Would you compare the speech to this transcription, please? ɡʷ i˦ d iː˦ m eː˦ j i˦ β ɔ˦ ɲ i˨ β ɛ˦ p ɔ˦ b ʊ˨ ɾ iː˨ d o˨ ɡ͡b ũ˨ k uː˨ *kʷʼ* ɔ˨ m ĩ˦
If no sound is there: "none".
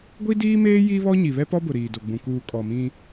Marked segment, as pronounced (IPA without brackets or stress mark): kʼ